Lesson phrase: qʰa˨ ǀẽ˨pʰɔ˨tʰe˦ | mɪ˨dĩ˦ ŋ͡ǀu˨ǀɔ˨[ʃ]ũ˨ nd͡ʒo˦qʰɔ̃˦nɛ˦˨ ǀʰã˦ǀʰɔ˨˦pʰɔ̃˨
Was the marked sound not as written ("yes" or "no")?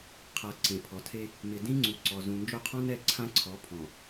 yes